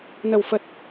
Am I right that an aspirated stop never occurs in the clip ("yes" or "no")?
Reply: yes